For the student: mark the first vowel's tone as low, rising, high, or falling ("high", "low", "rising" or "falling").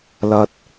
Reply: high